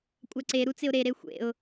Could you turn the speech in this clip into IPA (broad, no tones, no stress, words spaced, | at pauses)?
kʷʼaǀe ɾut͡sɪʊ̯ɾe ɾexʷḛʊ̯